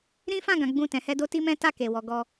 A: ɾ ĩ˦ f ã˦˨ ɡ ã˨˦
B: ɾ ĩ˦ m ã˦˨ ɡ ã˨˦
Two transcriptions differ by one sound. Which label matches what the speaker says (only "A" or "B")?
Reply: A